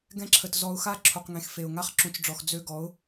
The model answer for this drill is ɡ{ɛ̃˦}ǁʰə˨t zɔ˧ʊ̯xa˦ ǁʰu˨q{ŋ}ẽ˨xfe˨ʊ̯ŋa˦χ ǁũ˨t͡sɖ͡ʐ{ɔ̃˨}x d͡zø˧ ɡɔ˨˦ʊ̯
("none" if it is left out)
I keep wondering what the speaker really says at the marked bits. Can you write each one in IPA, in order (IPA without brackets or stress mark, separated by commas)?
ɛ̃˧, ŋ, ɔ˨